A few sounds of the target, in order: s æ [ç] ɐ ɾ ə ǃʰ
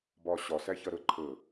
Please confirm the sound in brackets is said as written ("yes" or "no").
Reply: yes